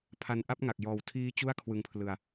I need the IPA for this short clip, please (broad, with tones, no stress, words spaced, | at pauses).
pʰa˧nʔa˥˩p̚ŋa˨˩k̚ jɔː˨˩wtʰiː˦˥ t͡ɕu˥˩a̯ kʰwɯ˧ŋpʰlɯ˧a̯